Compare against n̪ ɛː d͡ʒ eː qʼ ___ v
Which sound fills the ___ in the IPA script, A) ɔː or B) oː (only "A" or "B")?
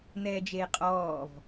A